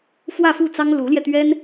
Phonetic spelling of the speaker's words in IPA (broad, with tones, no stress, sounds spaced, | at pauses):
f w ä˥˧ f u˥˩ t͡s ɑ˥ ŋ l u˧˥ l j ɛ˧ t̪ ɥ ɛ˥ n